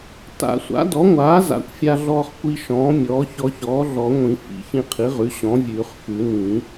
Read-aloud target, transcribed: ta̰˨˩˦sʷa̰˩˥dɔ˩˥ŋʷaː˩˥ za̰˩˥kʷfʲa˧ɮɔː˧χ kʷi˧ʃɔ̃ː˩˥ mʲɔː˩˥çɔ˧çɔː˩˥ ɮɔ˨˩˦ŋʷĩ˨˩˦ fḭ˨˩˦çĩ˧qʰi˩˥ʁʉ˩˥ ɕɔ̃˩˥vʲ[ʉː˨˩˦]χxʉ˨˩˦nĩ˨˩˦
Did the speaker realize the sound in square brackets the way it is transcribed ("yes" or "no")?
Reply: yes